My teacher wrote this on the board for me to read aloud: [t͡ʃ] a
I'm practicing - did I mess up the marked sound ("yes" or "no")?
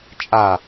yes